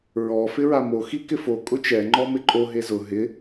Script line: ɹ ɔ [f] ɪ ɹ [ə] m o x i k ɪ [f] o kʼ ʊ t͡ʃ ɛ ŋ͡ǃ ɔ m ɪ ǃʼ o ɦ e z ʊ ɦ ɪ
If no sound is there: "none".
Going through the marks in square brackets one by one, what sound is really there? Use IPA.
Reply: f, a, f

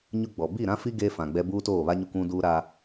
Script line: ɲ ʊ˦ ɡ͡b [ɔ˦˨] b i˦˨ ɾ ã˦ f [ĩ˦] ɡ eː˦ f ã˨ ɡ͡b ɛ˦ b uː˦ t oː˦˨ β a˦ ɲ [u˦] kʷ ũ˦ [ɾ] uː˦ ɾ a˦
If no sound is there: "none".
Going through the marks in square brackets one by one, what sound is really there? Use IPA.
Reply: ɔ˨, i˦, ʊ˦, d

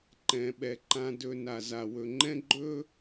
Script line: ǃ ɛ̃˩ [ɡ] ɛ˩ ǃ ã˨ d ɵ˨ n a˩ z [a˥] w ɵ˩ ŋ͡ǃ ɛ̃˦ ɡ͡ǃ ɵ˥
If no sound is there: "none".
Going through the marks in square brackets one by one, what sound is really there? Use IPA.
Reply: ɓ, a˩

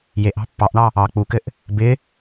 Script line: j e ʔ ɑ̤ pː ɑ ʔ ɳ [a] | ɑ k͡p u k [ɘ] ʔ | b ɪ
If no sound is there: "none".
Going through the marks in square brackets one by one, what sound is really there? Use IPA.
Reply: ɑ, ɘ

